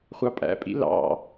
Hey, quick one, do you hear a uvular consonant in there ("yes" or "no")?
yes